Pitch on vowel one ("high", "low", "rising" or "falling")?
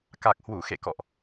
low